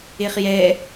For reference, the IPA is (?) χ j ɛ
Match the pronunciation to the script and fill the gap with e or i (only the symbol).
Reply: e